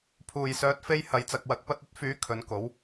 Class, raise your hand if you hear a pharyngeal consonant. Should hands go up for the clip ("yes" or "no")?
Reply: no